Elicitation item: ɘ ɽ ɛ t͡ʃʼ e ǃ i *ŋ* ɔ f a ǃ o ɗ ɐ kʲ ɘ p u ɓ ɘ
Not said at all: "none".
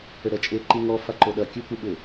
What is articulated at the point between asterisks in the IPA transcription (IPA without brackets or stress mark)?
ŋ